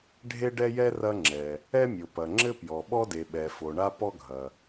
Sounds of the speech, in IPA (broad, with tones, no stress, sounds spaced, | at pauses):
ɖʱ e˥ ɖ ɛ˥ j ɛ˥ r ɐ˥ ŋ͡ǁ ɛ˩ | ɛ˥ mʲ o˩ p ɐ˩ ŋ͡ǁ ɘ˥ p j ɔ˩ ɓ ɔ˥ d e˩ ɓ ɛ˩ f o˩ ɳ a˥ p ɔ˥ ɡʱ ɐ˩